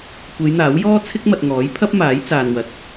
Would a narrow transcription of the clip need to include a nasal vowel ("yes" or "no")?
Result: no